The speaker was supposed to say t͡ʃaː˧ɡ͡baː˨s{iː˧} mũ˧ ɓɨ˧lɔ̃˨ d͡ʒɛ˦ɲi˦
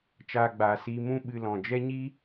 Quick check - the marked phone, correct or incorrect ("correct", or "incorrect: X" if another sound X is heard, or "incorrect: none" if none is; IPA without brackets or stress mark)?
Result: correct